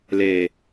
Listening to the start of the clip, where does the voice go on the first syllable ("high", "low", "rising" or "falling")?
low